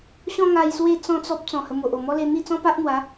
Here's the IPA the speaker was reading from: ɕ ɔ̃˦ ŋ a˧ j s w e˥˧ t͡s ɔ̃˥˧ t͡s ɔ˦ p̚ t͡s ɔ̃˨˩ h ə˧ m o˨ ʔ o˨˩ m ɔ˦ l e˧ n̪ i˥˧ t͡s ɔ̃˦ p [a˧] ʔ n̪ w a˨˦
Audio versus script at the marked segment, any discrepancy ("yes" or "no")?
yes